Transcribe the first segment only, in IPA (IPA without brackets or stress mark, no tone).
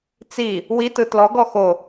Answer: t͡s